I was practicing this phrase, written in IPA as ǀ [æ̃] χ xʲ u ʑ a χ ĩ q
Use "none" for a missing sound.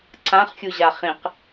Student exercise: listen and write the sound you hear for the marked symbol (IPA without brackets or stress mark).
ã